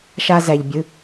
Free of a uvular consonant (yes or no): yes